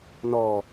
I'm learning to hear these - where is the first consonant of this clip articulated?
tongue tip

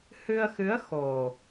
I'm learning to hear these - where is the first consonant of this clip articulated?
throat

